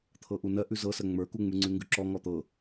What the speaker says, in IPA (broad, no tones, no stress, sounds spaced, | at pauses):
t̪ʰ ɤ ʔ u n ɜ ʔ ʉ z ɤ s ɜ ŋ͡m ə˞ k u ŋ͡m ʉ ŋ͡ǀ ʉ ŋ ɡ ʉ ǁ ɔ ŋ ɔ t̪ ɤ